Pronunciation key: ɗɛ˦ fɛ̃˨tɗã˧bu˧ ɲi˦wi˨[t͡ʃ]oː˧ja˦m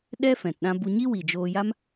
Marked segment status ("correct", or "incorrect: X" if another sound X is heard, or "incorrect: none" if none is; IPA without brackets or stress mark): incorrect: d͡ʒ